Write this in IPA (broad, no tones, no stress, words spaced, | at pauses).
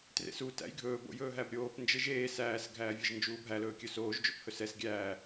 trḛsu tæ̰jɡʱɵː bo̰jɵːɦæbɾʲoːp nd͡ʒeʒeː sæːs ɡʱæːvʲɛʒnd͡ʒuːbʱæl ɵːkʲɵsoːʒ d͡ʒo̰phɵsɛs ɡʲæː